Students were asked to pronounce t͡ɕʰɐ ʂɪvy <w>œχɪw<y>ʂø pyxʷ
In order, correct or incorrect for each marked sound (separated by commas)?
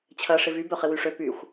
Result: incorrect, correct